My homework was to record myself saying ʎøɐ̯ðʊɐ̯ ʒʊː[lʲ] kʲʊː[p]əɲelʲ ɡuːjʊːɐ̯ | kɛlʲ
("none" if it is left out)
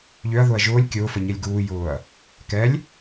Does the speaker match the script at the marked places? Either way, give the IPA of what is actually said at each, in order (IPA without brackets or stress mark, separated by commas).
lʲ, f